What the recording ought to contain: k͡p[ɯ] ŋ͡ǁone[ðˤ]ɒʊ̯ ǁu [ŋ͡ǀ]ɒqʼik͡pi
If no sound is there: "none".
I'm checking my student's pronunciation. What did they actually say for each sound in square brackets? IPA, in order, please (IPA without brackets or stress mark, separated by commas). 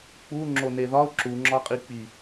u, ð, ŋ͡ǁ